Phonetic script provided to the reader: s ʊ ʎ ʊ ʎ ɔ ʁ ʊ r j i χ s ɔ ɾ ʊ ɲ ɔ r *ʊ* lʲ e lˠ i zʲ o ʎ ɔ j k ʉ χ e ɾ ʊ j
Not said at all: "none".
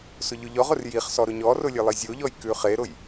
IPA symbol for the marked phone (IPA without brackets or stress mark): ʊ